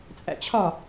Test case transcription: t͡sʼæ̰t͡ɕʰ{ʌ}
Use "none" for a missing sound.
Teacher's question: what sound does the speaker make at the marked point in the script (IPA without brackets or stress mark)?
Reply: ɒ